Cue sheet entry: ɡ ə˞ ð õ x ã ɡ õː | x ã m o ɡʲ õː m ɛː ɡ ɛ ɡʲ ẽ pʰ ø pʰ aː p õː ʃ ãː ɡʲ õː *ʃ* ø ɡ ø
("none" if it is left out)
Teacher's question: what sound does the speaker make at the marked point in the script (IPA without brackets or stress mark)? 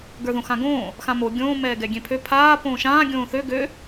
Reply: θ